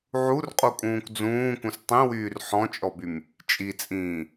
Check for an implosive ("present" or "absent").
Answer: absent